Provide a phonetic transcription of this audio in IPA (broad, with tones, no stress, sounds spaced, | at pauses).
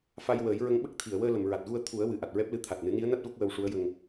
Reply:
f a˧ j w əː˨˩˦ j ɹ ə˧˥ ŋ ɓ ə˦˥ k̚ t̪ʰ i˨˩˨ ə̯ w əː˧ l ə˨˩˨ m ɹ a˨˩ t̚ ɣ u˧ ə̯ t̪ʰ u˨˩˦ ə̯ w ɨ˨˩ ʔ a˨˩ t̚ ɹ ɛ˦˥ p̚ l ɨ˧ t̪ʰ a˨˩ t̚ n ɨ˨˩˦ n i˧˥ ə̯ n a˦˥ t̚ v ə˦˥ k̚ w ə˧ w ʂ u˧˥ ə̯ j ə˧ ŋ